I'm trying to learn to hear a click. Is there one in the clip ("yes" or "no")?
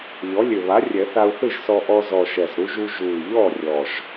no